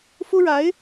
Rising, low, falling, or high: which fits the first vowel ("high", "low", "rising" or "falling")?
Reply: high